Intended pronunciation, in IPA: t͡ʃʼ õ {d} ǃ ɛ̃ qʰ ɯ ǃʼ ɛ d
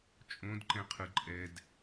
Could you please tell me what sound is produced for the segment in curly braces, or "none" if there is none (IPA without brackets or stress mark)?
d